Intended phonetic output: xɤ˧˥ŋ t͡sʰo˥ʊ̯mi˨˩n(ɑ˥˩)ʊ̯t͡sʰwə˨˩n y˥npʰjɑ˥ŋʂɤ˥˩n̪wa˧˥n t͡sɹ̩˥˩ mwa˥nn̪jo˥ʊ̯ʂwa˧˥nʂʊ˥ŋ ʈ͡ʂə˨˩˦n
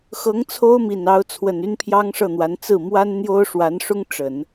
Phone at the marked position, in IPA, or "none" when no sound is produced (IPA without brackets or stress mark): ɑ˧˥